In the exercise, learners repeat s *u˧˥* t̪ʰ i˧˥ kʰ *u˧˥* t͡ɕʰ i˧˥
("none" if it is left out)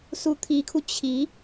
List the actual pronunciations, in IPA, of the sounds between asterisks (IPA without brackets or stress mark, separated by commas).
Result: u˧˥, u˧